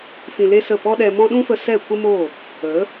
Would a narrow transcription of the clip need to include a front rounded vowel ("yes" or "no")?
no